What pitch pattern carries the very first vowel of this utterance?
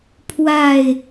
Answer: falling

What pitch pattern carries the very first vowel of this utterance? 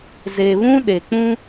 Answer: low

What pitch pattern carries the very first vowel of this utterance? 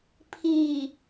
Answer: low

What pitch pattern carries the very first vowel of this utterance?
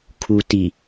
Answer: low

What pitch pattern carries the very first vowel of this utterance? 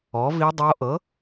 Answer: rising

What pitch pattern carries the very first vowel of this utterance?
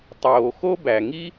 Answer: low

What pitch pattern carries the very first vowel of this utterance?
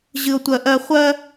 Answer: high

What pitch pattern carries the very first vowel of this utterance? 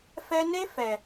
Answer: high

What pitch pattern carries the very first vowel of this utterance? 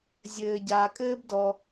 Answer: low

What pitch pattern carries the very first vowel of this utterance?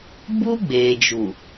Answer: high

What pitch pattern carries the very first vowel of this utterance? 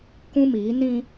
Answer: high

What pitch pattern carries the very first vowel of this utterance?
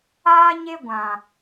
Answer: high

